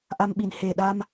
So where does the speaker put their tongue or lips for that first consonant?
throat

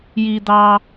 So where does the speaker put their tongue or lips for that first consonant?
palate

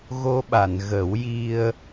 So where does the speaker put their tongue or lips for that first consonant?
velum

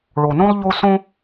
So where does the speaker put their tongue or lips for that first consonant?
retroflex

